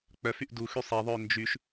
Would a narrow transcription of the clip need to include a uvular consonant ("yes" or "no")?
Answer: no